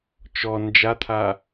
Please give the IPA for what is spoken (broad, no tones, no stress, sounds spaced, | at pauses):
t͡ʃ ɔ n d͡ʒ a t̪ʰ a